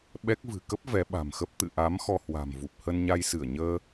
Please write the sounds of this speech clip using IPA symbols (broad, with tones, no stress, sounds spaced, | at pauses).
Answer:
ɓ ɛ˦˥ k̚ v ɨ̤˨˩ k ə˦˥ p̚ v ɛ˨˦ ɓ a̤˨˩ m x ə˦˥ p̚ t̪ ɨ̰˧˨ ʔ a˨˦ m x ɔ˧ h w a̤˨˩ m v u˨˩ p̚ h ə˧ n ɲ a˧ j s ɨ˧˩ ə̯ ɲ əː˧